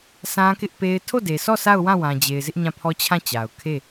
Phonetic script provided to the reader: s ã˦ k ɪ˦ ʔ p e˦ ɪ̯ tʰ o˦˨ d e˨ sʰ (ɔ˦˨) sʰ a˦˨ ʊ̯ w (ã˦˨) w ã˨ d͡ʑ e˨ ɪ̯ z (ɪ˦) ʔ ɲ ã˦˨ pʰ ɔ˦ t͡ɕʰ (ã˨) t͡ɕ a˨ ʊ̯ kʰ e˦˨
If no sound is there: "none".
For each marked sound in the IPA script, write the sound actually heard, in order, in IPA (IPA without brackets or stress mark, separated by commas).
ɔ˦˨, ã˦˨, ɪ˦, ã˦˨